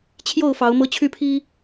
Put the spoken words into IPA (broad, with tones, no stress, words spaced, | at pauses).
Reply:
t͡ɕʰjo˥˨ʊ̯fɑ˨˦ʊ̯ mɤ˦t͡ɕʰy˦ pʰi˦